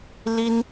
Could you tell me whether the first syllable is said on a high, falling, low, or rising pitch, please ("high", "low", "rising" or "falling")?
high